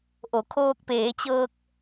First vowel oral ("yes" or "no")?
yes